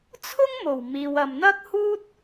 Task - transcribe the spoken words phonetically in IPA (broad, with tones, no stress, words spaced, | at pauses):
t͡sʰʊ˥ŋmo˨˩w miː˨wɐ˨mn̪ɐ˥k̚huː˥t̚